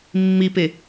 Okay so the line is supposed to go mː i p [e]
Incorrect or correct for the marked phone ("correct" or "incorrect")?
correct